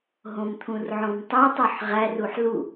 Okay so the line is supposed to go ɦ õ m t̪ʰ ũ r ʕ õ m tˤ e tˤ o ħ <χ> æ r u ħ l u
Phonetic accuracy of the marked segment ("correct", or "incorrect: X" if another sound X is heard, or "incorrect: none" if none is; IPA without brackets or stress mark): incorrect: ʁ